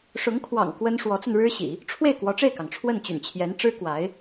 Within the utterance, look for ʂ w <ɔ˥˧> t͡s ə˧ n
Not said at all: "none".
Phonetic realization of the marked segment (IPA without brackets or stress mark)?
ɔ˧˥